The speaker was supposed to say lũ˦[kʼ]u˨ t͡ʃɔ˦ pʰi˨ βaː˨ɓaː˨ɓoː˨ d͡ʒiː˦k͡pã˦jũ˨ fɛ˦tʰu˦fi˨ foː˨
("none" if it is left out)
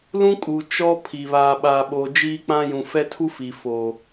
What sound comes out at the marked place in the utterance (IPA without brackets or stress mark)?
kʼ